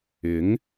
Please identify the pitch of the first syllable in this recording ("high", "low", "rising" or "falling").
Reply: rising